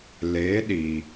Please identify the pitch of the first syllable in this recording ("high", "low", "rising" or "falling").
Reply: rising